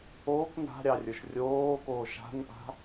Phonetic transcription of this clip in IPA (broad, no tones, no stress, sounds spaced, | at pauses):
oː k n a̤ ɾʲ ɑ rʲ ə˞ ʃ rʲ oː k oː ʃ a̤ n ʔ a̤